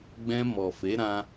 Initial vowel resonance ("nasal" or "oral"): nasal